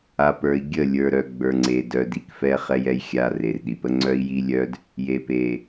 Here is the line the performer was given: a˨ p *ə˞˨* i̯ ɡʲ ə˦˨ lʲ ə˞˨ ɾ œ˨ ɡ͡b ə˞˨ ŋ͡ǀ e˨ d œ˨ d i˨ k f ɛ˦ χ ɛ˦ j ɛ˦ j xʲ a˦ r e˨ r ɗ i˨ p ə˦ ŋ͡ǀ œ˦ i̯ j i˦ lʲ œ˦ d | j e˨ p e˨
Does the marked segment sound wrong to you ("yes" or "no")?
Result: no